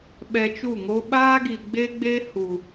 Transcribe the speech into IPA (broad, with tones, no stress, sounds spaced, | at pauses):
ɓ ɛ˧ t͡ʃ u˦˨ ŋ o˦ ɓ aː˦ ɡ i˨ ɡ͡b e˦ ɡ͡b e˦ h u˨